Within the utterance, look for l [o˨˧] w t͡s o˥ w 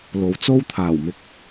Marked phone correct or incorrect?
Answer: correct